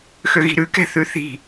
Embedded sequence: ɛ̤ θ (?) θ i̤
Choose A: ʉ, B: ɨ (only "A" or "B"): A